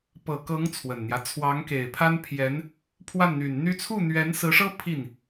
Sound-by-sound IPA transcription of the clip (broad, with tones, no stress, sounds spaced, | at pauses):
p ɤ˨˩ k ɤ˧˥ ŋ t͡sʰ w ə˨˩ n n̪ j ä˦ t͡sʰ w ɑ˧˥ ŋ k e˨˩ ɪ̯ pʰ a˥ n pʰ j ɛ˧˥ n | pʰ w a˥˩ n n̪ y˨˩ n n̪ y˥ t͡sʰ u˥˩ n̪ ɥ ɛ˧˥ n s ɹ̩˧˥ ʂ ɤ˥ pʰ i˥˩ n